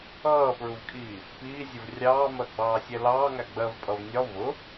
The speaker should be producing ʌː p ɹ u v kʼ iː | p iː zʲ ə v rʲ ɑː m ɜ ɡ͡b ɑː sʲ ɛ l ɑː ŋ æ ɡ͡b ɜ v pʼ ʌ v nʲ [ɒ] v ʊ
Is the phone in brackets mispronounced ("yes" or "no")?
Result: no